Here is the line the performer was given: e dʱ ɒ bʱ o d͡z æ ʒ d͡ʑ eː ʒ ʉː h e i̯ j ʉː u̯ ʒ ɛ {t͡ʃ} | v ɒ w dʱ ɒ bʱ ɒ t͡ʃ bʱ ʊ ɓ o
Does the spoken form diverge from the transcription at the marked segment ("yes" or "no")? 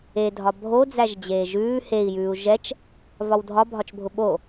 no